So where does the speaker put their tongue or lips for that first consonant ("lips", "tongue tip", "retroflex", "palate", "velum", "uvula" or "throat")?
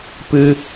lips